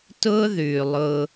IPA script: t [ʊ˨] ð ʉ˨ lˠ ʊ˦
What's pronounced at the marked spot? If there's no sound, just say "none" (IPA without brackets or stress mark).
ʊ˦